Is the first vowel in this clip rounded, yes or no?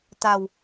no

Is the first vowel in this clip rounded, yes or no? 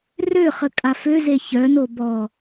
yes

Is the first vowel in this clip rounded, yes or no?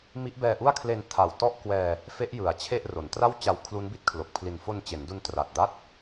no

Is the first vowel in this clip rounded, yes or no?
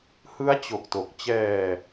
no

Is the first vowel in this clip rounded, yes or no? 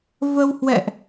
no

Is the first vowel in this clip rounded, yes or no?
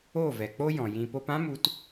yes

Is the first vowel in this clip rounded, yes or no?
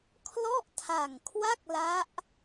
yes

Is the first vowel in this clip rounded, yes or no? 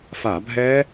no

